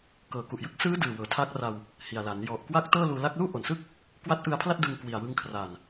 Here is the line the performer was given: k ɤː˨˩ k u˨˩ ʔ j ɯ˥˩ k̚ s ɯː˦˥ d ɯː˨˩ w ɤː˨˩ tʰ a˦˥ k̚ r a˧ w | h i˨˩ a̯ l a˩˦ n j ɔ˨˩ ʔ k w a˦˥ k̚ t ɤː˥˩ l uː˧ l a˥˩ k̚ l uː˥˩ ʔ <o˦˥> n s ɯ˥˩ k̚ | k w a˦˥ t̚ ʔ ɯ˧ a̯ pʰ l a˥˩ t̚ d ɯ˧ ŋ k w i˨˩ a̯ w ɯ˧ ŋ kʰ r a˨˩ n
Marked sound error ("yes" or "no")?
yes